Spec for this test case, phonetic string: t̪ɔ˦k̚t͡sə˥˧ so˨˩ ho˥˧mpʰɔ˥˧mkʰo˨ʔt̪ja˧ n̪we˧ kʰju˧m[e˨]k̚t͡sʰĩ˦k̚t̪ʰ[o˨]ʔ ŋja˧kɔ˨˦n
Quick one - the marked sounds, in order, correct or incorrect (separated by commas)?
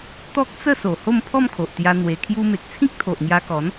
correct, correct